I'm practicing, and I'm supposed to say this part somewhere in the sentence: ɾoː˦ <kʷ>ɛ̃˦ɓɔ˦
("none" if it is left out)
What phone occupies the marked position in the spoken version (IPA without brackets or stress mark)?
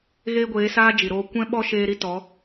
kʷ